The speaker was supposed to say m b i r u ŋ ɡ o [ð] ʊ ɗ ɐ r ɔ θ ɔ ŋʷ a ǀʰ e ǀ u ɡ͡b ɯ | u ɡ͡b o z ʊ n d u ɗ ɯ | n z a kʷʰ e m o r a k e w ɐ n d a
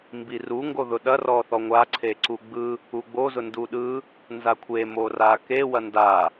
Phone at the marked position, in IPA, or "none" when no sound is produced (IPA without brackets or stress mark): ð